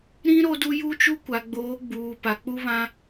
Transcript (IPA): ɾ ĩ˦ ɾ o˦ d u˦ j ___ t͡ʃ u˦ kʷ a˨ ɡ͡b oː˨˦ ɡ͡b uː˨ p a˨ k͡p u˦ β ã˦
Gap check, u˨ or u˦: u˦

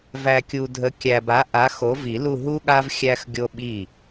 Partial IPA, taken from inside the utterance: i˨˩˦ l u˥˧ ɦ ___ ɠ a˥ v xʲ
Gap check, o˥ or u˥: u˥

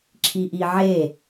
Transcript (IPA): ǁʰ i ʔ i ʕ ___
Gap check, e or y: e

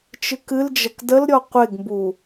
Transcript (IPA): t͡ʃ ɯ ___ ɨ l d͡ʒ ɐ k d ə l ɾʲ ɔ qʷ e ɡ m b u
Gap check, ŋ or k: k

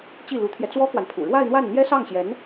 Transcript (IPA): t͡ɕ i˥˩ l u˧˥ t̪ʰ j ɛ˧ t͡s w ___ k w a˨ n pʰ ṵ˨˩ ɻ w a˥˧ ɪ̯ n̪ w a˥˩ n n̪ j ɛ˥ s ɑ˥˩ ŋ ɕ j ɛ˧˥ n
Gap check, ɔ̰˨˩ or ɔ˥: ɔ˥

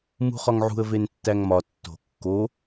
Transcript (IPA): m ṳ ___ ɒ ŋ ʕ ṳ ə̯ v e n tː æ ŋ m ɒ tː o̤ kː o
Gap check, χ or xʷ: χ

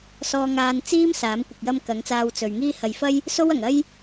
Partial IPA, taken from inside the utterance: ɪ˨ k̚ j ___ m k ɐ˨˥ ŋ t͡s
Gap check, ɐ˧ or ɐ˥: ɐ˥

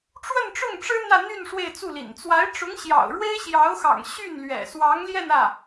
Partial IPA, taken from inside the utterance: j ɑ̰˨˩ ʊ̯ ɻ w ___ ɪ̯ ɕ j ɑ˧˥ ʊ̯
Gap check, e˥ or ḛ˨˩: e˥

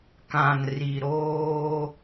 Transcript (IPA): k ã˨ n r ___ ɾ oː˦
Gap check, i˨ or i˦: i˨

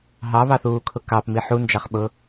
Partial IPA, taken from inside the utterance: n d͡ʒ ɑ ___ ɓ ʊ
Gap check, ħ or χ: χ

